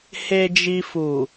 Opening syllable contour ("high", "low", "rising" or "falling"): low